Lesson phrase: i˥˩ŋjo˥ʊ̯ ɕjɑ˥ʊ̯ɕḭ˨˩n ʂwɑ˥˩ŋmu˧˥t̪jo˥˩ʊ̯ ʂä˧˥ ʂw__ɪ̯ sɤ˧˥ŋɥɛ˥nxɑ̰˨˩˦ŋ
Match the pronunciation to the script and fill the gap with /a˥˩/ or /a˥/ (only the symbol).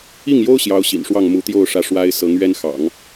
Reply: a˥